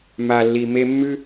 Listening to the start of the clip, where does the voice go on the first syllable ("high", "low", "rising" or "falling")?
low